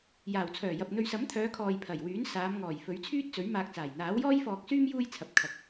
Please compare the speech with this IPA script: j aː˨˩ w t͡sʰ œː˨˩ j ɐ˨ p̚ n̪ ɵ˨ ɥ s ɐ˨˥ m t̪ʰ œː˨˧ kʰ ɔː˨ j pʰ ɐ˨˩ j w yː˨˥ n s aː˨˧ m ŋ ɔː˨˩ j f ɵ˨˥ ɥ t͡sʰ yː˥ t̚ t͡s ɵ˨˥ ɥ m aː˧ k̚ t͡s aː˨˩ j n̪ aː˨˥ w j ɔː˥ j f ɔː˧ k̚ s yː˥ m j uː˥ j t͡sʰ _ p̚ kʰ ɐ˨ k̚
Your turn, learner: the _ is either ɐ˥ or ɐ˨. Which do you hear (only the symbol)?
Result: ɐ˨